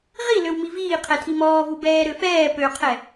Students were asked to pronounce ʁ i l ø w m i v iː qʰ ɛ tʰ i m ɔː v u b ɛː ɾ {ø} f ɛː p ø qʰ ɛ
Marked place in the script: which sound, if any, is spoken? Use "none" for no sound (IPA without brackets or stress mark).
ø